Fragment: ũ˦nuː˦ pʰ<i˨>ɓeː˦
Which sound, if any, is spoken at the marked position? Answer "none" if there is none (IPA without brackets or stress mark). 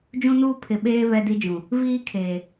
ɪ˨